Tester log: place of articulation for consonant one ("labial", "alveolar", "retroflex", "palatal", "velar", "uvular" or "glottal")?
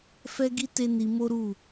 labial